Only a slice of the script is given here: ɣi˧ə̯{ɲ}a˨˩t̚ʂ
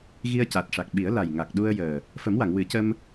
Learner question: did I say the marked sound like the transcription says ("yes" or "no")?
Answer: no